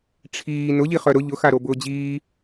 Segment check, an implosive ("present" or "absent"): absent